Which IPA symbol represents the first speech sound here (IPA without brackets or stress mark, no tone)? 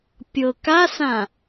pʲ